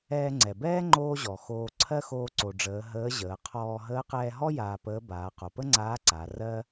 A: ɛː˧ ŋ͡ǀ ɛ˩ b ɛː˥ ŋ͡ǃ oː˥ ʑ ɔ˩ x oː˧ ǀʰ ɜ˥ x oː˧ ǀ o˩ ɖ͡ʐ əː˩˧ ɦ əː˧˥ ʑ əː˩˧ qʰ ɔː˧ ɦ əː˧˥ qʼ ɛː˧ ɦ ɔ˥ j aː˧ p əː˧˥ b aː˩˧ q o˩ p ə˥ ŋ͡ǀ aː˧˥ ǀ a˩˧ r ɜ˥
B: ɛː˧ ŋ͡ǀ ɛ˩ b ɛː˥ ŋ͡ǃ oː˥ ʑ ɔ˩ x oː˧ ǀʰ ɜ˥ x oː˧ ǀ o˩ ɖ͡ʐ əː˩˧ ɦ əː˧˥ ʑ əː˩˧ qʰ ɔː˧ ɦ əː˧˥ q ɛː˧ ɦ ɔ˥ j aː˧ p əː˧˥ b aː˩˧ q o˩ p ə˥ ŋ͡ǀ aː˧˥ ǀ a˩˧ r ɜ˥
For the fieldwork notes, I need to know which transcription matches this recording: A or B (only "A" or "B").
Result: B